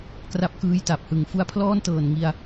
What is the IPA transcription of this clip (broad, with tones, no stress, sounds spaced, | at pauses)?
k r a˦˥ p̚ k ɯː˦˥ j t a˨˩ p̚ h ɯ˨˩ ŋ f u˦˥ a̯ pʰ l ɔː˥˩ n t ɤː˨˩ n ŋ i˧ a̯